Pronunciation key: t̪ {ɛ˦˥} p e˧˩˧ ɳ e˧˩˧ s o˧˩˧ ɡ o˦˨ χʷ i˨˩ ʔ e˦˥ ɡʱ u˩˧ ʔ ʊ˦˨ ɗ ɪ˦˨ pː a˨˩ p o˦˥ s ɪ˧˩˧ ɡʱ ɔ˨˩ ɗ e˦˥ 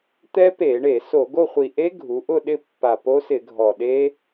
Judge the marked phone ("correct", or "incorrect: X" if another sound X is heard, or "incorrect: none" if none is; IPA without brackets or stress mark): correct